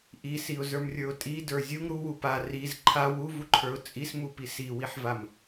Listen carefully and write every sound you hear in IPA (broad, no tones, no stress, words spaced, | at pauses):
ʔisiʊ̯zə˞mrʲə˞ʊ̯ tʼidə˞ zʲuŋ ɾuwu pa riz ǃʰa wuvuǃʰə˞ʊ̯ t͡sʼismupi siwiħvam